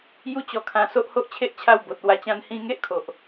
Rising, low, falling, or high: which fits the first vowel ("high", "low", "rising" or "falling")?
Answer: falling